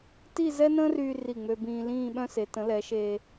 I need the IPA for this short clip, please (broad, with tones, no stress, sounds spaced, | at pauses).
t i˥˧ z ɛ˥ n ə̃ː˥ r yː˧ r i˧˩ ŋ͡m ø˧ b ĩː˧ l ĩː˥˧ ɓ œ̃˥ s e˩˧ t ə̃˩˧ l ɛ˩˧ ʃ e˧